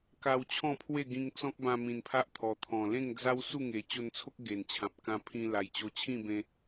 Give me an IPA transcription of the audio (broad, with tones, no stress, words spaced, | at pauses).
ka˧w t͡ɕʰɔ̃˥˧pʰwe˥˧ɡĩ˧ŋ t͡sɔ̃˦k̚bã˧mĩ˨˩n pʰa˦ʔt̪ʰɔ˨˩t̪ʰɔ̃˨˩ lẽ˥˧ŋd͡za˦w su˥˧ŋe˨˩t͡ɕo˧nt͡sʰo˦k̚ ɡe˨˩nt͡ɕʰã˨p̚ kã˧pʰĩ˧ la˨˩jt͡ɕo˧ t͡ɕʰĩ˥˧bẽ˧